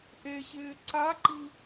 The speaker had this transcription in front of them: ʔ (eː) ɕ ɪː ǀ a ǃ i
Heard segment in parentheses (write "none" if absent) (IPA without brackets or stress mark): e